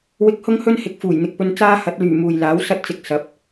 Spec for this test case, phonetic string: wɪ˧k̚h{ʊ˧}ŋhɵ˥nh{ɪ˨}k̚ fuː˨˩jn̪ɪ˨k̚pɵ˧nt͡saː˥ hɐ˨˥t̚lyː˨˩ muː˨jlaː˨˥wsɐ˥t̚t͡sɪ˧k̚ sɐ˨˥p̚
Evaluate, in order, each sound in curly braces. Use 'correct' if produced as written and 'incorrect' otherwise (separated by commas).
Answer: incorrect, correct